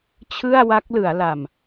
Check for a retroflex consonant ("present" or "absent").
absent